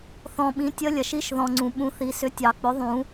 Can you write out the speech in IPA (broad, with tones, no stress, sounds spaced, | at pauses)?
θ ɔ̃˨ ɓ ĩ˩˥ tʲ ə˧˥ lʲ ɐ˨ ʃ i˧˥ ʃ ð ɔ̃˨ ŋ͡ǀ ũ˨˩˦ ɓ ũ˩˥ θ i˨ s ʏ˧˥ tʲ ɑ˨˩˦ k͡p ʏ˩˥ ðˤ ũ˨˩˦